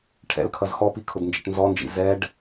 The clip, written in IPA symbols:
ʈʰ ɛ̰ l kʰ ʌ z x ɔ p i kʰ ʊ d n d͡ʒ ɛ̰ ʈ n z ɔ n d͡ʒ ḭ z ɛ ɖ

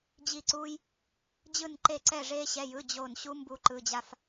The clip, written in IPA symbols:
d͡ʑ i˥˧ ǀ uː˥ j | d͡ʑ ɯ˥˧ n ǃ e˥˧ ǀ ɛ˥˧ ʐ eː˥ ɕ ɛ˧˥˧ j ɯ˧˥˧ d͡ʑ o˥˧ n ɕ u˥ m b u˥ ǃ ɯ˧˥˧ d͡ʑ a˥ f

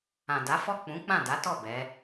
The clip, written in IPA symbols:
ã˨ d a˨˦ f ɔ˦˨ k͡p ũ˨˦ k͡p ã˦˨ d a˨˦ t ɔ˦˨ b ɛ˨˦

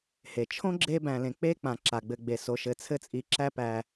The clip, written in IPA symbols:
h e˩ t͡ʃʰ õ˥ ɡ͡ǁ e˦ b æ̃˨ l ẽ˨ k͡p e˥ k͡p ã˩ ǁ a˩ ɡ͡b ɘ˨ ɡ͡b e˩ s o˨ ʃ ɘ˨ t͡sʰ ɘ˥ t͡sʼ i˨ ǁ æ˥ p æ˨

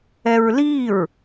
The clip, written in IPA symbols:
ɛ ɹ l i ɹ

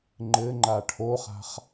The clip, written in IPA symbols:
ŋ͡ǃ ɘ ŋ͡ǃ a ʈʰ o χ a̤ χ

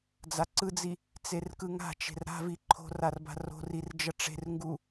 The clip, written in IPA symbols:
d͡z a ǀ ɯ d͡z i | t͡s e r k ɯ ŋ a̤ t͡ʃ e̤ r ɾ a̤ v i ǃʰ o̤ r a r b a̤ r o̤ r i r d͡ʒ ʌ ʈ͡ʂ e̤ r ŋ ɡ u

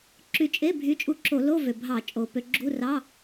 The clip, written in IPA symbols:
ǁ y˧ t͡ʃʼ e˧˥˧ bʱ y˨˥ t͡ʃʼ u˧ ǁ o˧˩˧ l o˧˥˧ v ø˨˩ bʱ ɑ˧˩˧ t͡ʃʼ o˨˩ p ø˧ ɡ͡ǁ u˧˥˧ r ɑ˧˥˧

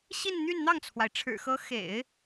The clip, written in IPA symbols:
ɕ i˥˧ n n̪ y˥˧ n n̪ ɑ˥˩ ŋ t͡sʰ w a˩ ɪ̯ ʈ͡ʂʰ ɻ̩˨˩ x ɤ˧˥ x ḛ˨˩˦ ɪ̯

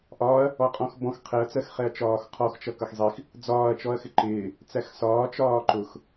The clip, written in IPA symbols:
ʔ ɒː ɐ̯ | ɔ qʼ ɔ̃ x b ɔ̃ x qʰ ɛ ɐ̯ t͡s ɜ x χ ɛ ɐ̯ t͡ʃ ɒː x qʰ ɔ x t͡ʃ ʌ k ʌ x zˤ i x | d͡z ɒː ɐ̯ t͡ʃ ɔ ɐ̯ x ɪ ǃ ɪː | t͡s æ x s ɒː t͡ʃ ɒː ǃ ʊ x

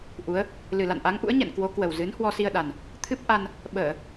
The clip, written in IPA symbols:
ʔ u˨˦ ə̯ | l ɨ˨˩ l a̰˧˨ n ʔ a˨˦ ŋ ʔ ṵ˧˥ ə̯ ɲ ɛ̰˧˨ n k w o˨˦ k w ə˨˩ w z ɨ˨˦ n h w ɔ˧ s i˧ ə̯ ɗ a˨˩ n | t̪ʰ ɨ˦˥ p̚ ʔ a˧ n | ɓ əː˧˩˨

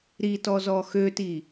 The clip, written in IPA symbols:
ɾ i t ɔ z ɔ x ø t i

